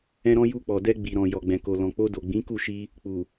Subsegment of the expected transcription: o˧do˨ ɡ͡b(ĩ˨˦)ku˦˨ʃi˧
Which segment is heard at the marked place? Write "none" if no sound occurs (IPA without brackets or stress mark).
ĩ˨˦